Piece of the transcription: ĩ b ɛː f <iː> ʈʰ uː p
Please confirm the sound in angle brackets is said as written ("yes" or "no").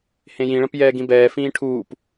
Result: no